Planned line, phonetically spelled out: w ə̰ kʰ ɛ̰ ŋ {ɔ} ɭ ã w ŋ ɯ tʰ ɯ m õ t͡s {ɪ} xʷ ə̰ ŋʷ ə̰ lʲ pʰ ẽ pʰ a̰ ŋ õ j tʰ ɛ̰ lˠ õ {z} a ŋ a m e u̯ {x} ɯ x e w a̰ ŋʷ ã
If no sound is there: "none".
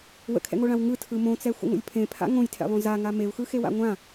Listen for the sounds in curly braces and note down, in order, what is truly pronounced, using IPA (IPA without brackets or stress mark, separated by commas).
o, ɛ, z, x